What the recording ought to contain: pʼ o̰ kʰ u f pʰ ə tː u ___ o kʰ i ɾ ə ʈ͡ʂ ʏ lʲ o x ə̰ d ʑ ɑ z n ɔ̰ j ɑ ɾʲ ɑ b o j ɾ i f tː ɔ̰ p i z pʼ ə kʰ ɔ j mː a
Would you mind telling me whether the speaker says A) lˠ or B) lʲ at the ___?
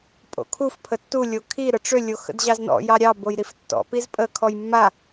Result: B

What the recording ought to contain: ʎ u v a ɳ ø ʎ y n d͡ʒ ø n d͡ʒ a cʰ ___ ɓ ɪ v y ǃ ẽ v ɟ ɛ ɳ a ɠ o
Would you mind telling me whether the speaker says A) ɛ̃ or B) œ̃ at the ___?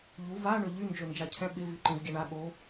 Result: A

